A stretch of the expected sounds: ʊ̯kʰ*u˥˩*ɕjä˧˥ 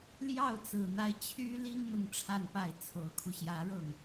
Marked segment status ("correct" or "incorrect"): incorrect